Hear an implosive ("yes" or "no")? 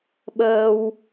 yes